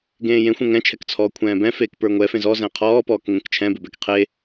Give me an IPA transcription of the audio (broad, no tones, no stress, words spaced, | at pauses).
ɡẽːjẽ xʷɛ̃ŋɛ̃t͡ʃʰɛk t͡sʰɔːkʷʰɛ̃ːbɛ̃feːk pə˞ŋʷɛ fẽzɔzɛ̃ qʰɔːpɔːk ŋẽkt͡ʃʰɛ̃bebɛk qʰe